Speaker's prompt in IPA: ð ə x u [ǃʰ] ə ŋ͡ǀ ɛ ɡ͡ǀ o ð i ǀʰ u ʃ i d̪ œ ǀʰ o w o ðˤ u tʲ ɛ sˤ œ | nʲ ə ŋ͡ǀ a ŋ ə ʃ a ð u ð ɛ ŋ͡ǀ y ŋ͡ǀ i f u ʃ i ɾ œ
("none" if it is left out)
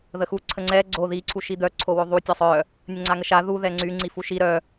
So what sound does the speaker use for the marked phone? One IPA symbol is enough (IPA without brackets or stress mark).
ǀʰ